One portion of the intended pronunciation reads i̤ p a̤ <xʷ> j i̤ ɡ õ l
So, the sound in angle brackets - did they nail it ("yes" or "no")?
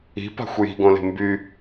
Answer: yes